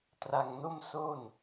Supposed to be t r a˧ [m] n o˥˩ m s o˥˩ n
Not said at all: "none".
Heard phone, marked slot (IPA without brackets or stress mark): ŋ